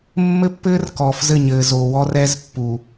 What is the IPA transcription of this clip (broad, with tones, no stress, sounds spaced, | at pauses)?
mː ɘ˦ pː ɘː˦ r k ɔː˨ f z ɘ˦˨ ɲ ɘː˨ z o˨ w ɔ˦ r ɛ˦ z pː u˨